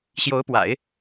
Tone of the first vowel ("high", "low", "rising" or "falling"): rising